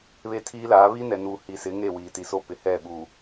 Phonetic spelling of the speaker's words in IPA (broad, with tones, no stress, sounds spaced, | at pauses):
β e˦ tʰ iː˦ l aː˨˦ β i˦ n ɛ˨ n uː˨ h i˨ s ɪ˨˦ ŋ e˦˨ w iː˨ t i˨ s o˦ p ɪ˨ h ɛ˦˨ ɓ u˨